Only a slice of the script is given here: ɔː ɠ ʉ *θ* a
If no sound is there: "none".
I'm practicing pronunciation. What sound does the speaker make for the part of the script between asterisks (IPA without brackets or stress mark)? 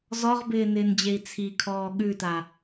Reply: t